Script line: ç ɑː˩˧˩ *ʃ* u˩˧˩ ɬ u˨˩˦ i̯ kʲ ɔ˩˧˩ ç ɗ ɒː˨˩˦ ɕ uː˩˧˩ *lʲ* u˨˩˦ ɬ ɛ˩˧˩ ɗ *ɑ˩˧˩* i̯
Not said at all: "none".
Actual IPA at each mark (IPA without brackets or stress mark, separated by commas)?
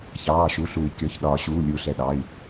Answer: ʃ, lʲ, ɑ˩˧˩